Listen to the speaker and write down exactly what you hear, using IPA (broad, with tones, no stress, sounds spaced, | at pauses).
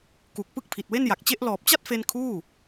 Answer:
k u˨˩ k̚ p ɯ˥˩ k̚ pʰ i˨˩ t̚ w e˥˩ n j a˨˩ k̚ t͡ɕ e˦˥ ʔ l ɔː˨˩ p̚ t͡ɕ a˥˩ t̚ f e˧ n kʰ uː˥˩